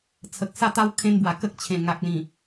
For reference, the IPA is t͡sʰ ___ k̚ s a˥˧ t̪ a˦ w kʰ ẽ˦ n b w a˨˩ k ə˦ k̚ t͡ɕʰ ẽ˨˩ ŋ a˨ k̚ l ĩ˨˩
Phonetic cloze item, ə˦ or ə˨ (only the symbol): ə˨